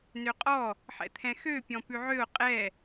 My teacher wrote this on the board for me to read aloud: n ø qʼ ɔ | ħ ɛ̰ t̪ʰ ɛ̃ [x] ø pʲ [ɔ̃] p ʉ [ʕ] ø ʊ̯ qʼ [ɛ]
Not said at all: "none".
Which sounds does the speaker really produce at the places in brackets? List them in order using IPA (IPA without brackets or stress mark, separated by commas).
x, ɔ̃, ʕ, ɛ